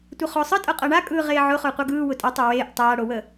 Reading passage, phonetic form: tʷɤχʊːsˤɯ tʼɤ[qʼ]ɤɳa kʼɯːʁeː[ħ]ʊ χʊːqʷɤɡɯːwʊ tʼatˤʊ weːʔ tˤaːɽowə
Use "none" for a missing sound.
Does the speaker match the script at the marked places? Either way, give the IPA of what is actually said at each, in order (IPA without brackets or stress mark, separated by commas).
qʼ, ʕ